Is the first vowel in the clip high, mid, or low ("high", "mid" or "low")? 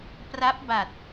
low